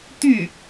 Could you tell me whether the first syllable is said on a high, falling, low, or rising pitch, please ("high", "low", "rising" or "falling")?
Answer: falling